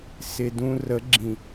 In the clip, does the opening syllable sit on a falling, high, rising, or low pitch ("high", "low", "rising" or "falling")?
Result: low